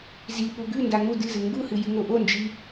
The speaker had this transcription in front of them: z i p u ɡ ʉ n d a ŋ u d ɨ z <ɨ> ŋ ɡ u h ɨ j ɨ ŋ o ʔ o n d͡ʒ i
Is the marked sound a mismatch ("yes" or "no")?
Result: no